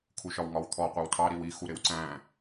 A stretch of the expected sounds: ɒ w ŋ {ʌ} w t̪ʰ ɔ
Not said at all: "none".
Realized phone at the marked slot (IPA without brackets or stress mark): ɒ